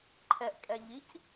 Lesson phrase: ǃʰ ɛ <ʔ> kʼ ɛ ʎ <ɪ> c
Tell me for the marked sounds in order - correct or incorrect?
correct, incorrect: i

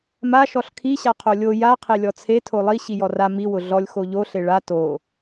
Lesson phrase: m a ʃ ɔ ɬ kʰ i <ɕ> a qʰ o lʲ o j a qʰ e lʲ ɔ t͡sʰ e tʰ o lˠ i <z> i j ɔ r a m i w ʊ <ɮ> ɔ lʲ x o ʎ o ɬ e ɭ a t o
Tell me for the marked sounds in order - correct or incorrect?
correct, incorrect: ɕ, correct

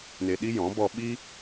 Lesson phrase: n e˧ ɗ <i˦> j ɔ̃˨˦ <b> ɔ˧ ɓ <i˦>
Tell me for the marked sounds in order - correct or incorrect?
correct, correct, correct

